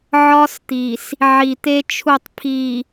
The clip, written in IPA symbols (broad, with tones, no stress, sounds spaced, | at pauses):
ʕ ɒ˦ s t̪ i˨ s | ʕ i˨ t̪ e˦ t͡ʃʰ u˦˨ tˤ pʰ i˨